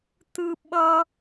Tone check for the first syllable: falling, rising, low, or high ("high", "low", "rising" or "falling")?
high